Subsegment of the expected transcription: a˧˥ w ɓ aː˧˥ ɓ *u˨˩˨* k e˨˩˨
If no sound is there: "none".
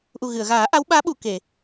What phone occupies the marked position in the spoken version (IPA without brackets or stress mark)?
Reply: u˨˩˨